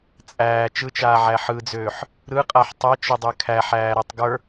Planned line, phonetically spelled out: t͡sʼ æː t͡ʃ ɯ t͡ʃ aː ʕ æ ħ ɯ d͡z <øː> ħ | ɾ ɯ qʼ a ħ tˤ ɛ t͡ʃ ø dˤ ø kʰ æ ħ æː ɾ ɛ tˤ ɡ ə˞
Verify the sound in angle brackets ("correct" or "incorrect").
correct